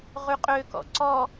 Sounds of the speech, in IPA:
ʁ y qʼ ø k ɔ̰ ǀ ɔ

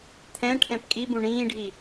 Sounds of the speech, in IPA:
t̪ʰ ɛ̃ ʈʰ ɛ̃ p kʼ i b ũ ɳ ĩː ɖʱ i

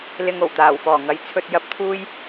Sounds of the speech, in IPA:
l ɪ˧ ŋ o˨˩ w t̪ aː˨˩ w f ɔː˨˩ ŋ ɐ˨˥ j t͡sʰ ɵ˧ t̚ j ɐ˥ p̚ t̪ʰ uː˥ j

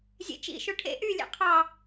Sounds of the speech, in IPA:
zʲ ḛ t͡ʃ ḭ ʃ o ʈʰ ḛ ʔ y lʲ ḛ qʰ ɑ

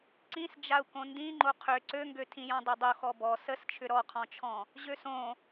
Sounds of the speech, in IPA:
ǀ ĩ s d͡ʒ a u̯ k õ n d ĩ ŋ͡ǃ o qʰ ʏ ǀ ø ŋ ɡ ø tʰ ĩ j ɔ̃ dˤ ø dˤ o x ɔ b ɔ s ə s t͡ʃʰ ʏ ɾ ɔ qʰ ɔ̃ t͡ʃʰ ɔ̃ | ʑ ø s õ

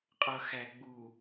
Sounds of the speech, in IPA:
qʼ ʌ x æ ɡ͡b u

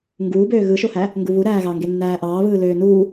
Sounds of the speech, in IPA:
ŋ ɡ uː b øː ɣ ɯ ʃ o h æ | ŋ ɡ u β u ɾ æː ɣ ɑ ŋ ɡ e nː æː ʔ ɑː β ɯː l øː n uː

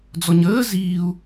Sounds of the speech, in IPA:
d͡z ɔ ɲ əː z iː u̯

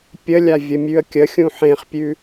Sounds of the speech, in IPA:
pʲ ə lʲ a vʲ ə mʲ ʉ ə̯ kʲ ə xʲ ũ ħ ẽ χ pʲ ʉ

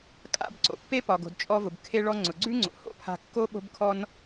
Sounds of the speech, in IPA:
kʼ a̰˧ b ǀ o̰˩ pː e˥ p ɒ˩ ɡ o̤˩ d t͡ʃʼ ɔ˧ v ʊ˩ b kʰ e˧ ɭ ɔ˧ ŋ͡ǀ ʊ˩ ɡ͡ǀ ʉ˥ ŋ͡ǀ o̰˩ h o̰˥ pʰ a̤˧ kː o˥ ɓ o̤˥ b kʰ ɔ˥ n

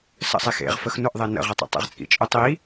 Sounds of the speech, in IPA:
s ə̰ sˤ e x ḛ ʁ f ə x n ʊ ʔ ðˤ e n ə̰ ʁ e tˤ ə̰ tˤ ḛ ʁ t͡sʼ ḭ t͡ʃʼ ʊ tˤ i

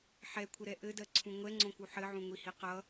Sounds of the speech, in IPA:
ħ ɛ kʷʰ ə ɾ ɛ ʔ ɘ d ɜ ǀʰ ũ ŋʷ ɛ ŋ͡ǀ õ k u ħ ɘ ʕ ũ ŋʷ i h i q ʌ

